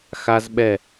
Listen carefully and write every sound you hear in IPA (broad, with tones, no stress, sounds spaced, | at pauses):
x a˧ z ɓ ɛ˧˩